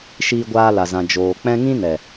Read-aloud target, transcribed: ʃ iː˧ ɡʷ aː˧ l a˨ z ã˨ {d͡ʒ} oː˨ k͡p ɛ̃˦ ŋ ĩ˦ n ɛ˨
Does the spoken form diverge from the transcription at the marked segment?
no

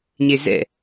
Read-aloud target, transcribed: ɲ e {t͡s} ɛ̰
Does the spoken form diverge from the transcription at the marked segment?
yes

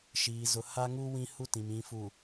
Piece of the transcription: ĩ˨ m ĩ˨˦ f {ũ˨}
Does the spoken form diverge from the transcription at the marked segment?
yes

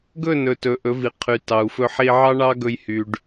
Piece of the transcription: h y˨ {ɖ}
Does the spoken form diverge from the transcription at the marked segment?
no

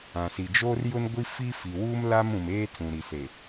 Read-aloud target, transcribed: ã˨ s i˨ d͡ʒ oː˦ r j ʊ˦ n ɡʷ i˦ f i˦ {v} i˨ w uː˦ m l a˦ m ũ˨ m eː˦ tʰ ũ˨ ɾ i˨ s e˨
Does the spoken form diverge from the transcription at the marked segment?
yes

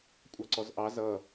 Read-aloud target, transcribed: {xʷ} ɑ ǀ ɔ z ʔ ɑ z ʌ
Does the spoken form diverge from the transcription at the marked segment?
yes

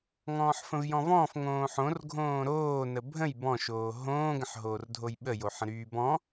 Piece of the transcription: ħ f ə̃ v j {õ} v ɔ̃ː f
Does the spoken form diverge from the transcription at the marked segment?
yes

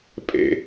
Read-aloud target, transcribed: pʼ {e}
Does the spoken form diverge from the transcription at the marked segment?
yes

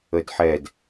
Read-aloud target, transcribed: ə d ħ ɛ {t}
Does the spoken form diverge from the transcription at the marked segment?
yes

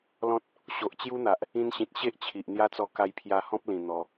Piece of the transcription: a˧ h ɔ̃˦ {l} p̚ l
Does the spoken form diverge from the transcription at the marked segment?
yes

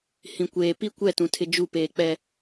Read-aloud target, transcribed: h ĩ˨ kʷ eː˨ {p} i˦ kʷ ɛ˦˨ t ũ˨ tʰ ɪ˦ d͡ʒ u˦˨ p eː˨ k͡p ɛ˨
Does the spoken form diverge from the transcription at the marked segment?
no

